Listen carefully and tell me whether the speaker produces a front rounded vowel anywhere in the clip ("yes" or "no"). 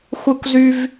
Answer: yes